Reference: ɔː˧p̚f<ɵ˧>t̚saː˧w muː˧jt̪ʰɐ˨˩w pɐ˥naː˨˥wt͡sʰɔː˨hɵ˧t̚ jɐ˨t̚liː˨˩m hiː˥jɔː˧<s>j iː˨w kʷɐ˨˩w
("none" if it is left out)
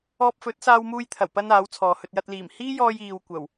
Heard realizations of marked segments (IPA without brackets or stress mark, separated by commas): ɵ˨˥, none